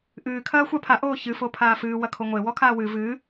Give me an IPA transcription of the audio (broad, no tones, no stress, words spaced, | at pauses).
ʔɨː kʰɐːxʷapʰa ʔoːçɨ fopʰaːfɨː wɐkʰoŋʷe wɔkʰaːwɨ vɨː